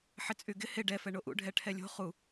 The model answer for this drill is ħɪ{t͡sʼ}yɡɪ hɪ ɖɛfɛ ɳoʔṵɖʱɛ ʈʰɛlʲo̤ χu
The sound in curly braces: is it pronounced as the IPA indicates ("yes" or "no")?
yes